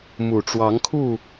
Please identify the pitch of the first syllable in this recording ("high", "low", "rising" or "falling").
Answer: low